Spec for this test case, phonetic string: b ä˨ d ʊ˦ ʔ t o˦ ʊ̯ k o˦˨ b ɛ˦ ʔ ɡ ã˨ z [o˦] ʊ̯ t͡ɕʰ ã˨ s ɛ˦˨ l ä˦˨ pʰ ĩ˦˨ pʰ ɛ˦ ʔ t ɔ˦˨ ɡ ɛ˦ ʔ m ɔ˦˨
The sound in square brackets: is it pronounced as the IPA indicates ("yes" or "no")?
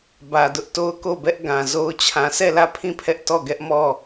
yes